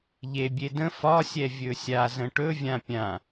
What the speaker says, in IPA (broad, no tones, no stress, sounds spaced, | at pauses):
ʎ e bʲ e d ə̃ f ɒ sʲ ɛ vʲ ɵ sʲ a z ə̃ ʈ ɵ vʲ ã pʲ ã